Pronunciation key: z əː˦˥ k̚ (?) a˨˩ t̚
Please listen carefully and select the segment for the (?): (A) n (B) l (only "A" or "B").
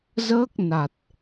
A